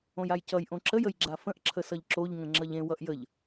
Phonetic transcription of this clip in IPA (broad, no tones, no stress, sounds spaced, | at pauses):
õ j a j c ʌ j ʔ õ ǁ ə j ə j ɡ͡ǁ a f ə̃ ʔ ǁʰ ə s ʌ ʎ ǁ o ʎ ŋ ə̃ ŋ͡ǁ ʌ ʎ ẽ w ʌ ʔ j ə ʎ